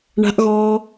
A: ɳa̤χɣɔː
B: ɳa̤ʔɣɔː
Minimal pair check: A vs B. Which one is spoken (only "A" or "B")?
B